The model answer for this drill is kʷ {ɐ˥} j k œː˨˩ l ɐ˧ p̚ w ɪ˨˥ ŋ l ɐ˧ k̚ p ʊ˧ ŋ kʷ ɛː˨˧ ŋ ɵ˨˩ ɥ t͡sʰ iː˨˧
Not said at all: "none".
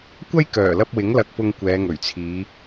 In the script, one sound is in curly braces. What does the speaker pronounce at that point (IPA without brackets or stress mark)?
ɐ˥